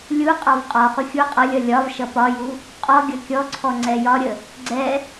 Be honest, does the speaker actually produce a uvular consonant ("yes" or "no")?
yes